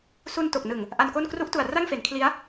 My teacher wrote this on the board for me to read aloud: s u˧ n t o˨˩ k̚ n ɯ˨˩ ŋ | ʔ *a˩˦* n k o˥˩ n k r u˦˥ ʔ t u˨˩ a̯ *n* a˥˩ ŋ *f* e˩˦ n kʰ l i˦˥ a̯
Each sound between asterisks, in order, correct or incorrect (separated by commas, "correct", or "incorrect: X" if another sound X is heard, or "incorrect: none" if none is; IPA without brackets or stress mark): incorrect: a˧, incorrect: r, correct